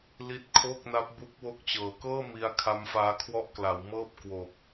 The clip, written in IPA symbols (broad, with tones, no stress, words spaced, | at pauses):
li˦˥t̚kʰo˥˩k̚na˦˥p̚bu˦˥k̚ wo˦˥k̚t͡ɕɤː˨˩ kɤː˥˩ mi˧a̯ kʰa˦˥mfaː˦˥kʰwɔ˥˩ʔkla˩˦w mɤː˥˩p̚kwo˨˩k̚